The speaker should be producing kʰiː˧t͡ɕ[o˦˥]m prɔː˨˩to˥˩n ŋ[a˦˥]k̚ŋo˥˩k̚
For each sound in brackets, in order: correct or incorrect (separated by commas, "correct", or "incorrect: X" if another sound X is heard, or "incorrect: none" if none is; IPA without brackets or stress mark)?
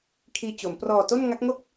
incorrect: o˩˦, correct